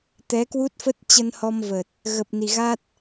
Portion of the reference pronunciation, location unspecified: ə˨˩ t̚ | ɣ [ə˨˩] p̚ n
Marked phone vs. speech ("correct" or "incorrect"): correct